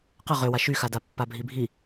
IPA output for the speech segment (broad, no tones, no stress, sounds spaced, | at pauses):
q ə ʁ ø w a ʃ y x a d a pː a bʱ i bʱ i